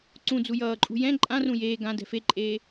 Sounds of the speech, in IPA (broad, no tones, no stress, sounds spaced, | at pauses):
ǀ ũ d͡z u j ʌː ǃʼ ṳ j ɛ̃ ǃʼ ã r ũ j eː ɡ ã d ɛ̤ f e ǃʼ eː